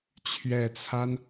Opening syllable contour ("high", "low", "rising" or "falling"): low